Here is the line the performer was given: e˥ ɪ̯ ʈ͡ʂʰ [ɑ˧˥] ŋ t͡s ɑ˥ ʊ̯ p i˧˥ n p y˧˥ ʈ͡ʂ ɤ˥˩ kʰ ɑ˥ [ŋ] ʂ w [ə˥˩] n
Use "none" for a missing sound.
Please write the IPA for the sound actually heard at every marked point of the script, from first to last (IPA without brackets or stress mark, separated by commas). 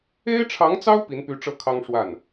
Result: ɑ˧˥, ŋ, a˥˩